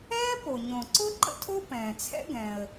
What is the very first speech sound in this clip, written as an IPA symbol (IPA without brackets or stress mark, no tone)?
ɛː